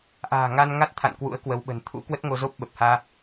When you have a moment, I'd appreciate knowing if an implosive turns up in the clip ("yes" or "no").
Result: yes